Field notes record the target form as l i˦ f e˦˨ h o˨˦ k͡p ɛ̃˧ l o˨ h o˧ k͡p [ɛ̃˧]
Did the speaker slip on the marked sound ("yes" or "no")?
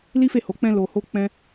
no